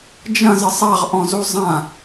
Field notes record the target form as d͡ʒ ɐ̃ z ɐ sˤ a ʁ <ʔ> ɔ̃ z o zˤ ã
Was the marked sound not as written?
no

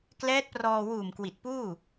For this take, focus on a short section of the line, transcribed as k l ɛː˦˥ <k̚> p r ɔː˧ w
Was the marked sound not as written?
yes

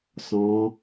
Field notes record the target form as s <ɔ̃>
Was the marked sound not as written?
no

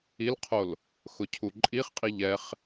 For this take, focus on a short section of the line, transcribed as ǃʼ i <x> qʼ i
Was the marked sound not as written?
yes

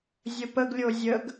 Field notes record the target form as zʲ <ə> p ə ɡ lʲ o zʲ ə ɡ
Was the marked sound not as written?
no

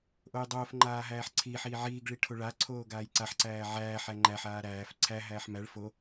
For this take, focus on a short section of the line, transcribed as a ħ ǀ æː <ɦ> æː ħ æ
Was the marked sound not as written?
yes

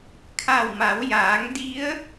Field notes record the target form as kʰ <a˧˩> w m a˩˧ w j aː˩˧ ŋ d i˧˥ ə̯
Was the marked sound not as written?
no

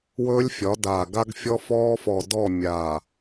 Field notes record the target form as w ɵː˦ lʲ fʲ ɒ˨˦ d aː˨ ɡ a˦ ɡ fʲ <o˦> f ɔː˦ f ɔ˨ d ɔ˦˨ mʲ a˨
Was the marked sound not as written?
yes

